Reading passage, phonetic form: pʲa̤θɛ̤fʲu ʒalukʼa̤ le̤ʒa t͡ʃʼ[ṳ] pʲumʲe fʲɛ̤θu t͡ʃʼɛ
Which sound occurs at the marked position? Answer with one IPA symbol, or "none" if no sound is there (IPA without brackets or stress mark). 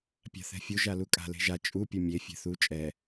u